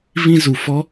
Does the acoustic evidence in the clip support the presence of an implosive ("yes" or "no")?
no